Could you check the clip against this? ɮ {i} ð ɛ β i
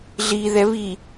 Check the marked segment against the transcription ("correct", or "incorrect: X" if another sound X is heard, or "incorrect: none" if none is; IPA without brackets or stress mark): correct